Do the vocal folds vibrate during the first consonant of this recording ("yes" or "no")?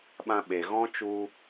yes